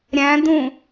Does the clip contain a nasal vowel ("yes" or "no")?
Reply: yes